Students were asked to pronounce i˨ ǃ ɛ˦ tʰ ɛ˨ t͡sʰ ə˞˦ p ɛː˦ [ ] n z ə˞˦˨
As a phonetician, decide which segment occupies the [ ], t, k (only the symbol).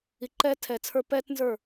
t